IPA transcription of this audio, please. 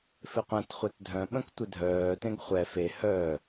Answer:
f ɪ qʷ ɛ̃ t χʷ ɛ t dʱ œ̃ ɓ ə̃ k tʷ ɪ dʱ œː t ẽ ɡ χʷ ɛ f e h œ

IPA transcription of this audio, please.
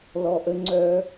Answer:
l ɔ˧ ʔ ə˥ ŋ͡ǀ œ˥

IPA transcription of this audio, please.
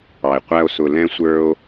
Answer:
ɑ˨ e̯ qʷ æ˧ o̯ s ʊ˨ l ɛ̃˧ sʷ ə˞˦ o̯

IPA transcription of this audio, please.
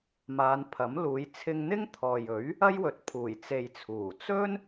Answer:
m aː˨˧ n pʰ ɐ˨˥ m l uː˨˧ j t͡sʰ ɪ˧ ŋ n̪ ɪ˥ ŋ t̪ʰ ɔː˨ j ɵ˨˥ ɥ | ɐ˥ j w ɵ˨˥ t̚ pʰ uː˨˩ j t͡s e˨ j t͡sʰ uː˨˩ t͡s ɵ˥ n

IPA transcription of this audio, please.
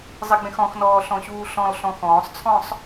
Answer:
zˤ ɪ ɡ͡b ẽ x ɔ̃ x n ɔː ɬ ɔ̃ ɕ uː ɬ ɔ̃ l ɬ ɔ̃ x ɔ̃ː sˤ t͡sʰ ɔ̃ sˤ

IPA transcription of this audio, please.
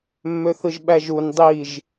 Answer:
mː ø θ ɯ ʒ ɓ æ ʒ u n dˤ i ʒ

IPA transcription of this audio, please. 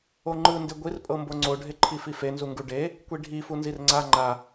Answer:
o ŋ͡ǃ ɯ n d e ɡʷ i r pʼ ɤ m b o ŋ͡ǀ o ɖʱ e ǃʰ i f i f e n z u ŋ ɡ u ɖ e | kʷ i ɖʱ i f u n z i r ŋ͡ǀ a ŋ͡ǃ a

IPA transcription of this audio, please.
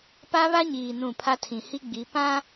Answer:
p a˦ β a˦ ɲ iː˨ n ũ˦˨ pʰ a˦ tʰ ĩ˨ h i˦ ɡ͡b i˨˦ p ã˦

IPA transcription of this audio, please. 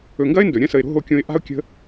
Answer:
ɵ˨ ŋ ɡ ɐ˥ ɪ̯ n d ɵ˩ ɾʲ ɐ̃˥ s ə˨ ɪ̯ ɾ o̤˦ ɦ o˦ kʲ õ˦ ɪ̯ ʔ a̤˥ ʊ̯ kʲ ə̤˦

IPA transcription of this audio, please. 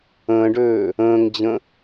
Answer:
ə̃ː ɖ øː | ə̃ː ŋ d͡ʑ ə̃

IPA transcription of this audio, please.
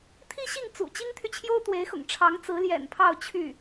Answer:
t̪ʰ i˥ ɕ i˥˩ ŋ t͡s ṵ˨˩ t͡ɕ i˥ ŋ t̪ʰ y˨ t͡ɕʰ j o˥ ʊ̯ t̪ w e˧˥ ɪ̯ x ʊ̰˨˩ ŋ ʈ͡ʂʰ ɑ˧˥ ŋ t͡s ɹ̩˧˥ l j ɛ̰˨˩ n pʰ ɑ˥˧ ʊ̯ t͡ɕʰ y˥˩

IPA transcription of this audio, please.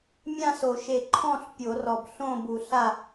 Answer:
mʲ ã˥˨ s o˨˩˦ ʃ e˨˩ ǃʰ ɔ̃˥˨ ɬ pʲ o˨˩˦ r ɔ˨˩ b ɬ õ˥˨ b u˨˩˦ ɬ a˥˨

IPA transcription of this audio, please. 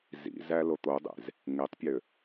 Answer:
z ḭ z æ l o t̪ o dˤ ḛ z | ŋ e tˤ pʲ ø

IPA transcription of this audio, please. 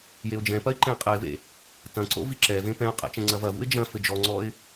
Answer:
j e ʊ̯ d͡ʒ ɛ̃ p ɐ ɪ̯ ǃ ɛ̃ ɪ̯ qʼ ɛ ɪ̯ v ḛ | t ɐ̃ ǀ o̰ v i ǁ ɛ v ẽ p ɛ̃ ʊ̯ qʼ ɛ̰ t͡ʃ ɛ̃ ŋ͡ǀ ɐ v ɐ v ṵ ɪ̯ d͡ʒ ɐ̃ f ɘ d͡ʒ ɔ ŋ͡ǀ ɔ ɪ̯

